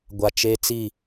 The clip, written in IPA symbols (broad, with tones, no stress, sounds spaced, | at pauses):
ɡʷ a˨ t͡ʃ eː˦ t͡s i˦˨